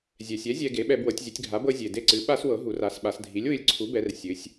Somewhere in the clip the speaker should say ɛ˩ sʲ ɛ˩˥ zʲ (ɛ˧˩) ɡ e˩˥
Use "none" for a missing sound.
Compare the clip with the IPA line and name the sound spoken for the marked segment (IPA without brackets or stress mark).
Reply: ɛ˧